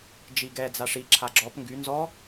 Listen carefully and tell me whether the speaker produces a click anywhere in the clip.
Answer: yes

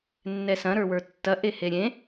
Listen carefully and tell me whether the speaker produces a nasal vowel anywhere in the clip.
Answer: yes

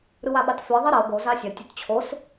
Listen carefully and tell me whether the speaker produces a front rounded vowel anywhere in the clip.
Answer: yes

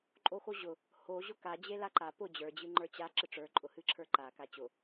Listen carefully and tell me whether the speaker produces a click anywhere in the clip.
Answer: yes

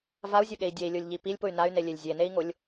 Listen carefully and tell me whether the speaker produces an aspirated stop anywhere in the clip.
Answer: no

